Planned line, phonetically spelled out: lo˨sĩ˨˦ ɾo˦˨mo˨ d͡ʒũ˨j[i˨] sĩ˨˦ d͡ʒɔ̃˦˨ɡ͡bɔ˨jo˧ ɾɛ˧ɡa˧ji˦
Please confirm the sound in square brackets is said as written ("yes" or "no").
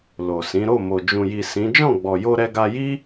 yes